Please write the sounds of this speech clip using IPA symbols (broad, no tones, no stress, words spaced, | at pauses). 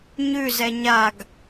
ɲʉzɛ ɲaɡ